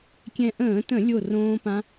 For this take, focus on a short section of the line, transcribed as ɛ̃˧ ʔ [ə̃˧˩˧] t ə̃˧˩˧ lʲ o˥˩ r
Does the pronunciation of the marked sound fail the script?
yes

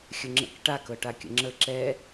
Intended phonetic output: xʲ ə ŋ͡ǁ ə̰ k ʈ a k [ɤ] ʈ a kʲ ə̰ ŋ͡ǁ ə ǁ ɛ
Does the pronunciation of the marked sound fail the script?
no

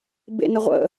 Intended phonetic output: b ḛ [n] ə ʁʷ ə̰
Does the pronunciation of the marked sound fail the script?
no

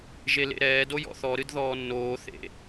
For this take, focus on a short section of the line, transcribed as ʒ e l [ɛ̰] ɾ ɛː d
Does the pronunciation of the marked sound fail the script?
yes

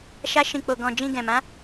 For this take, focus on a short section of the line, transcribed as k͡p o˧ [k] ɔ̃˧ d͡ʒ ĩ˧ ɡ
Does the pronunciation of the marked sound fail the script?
yes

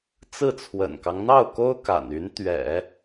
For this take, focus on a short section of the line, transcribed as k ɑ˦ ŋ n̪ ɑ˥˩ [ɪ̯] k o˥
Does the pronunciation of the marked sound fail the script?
yes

